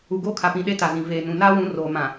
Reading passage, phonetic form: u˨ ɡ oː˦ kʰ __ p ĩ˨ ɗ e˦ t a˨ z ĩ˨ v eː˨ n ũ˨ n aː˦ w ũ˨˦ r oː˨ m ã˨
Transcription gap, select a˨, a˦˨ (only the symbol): a˨